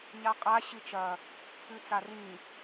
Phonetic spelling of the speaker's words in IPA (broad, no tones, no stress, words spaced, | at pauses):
ɲaqʼa ɕɨt͡ʃɐ | ʉt͡sarĩ